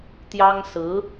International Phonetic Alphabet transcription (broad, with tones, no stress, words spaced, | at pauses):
t̪jɑ˥ŋsɹ̩˧˥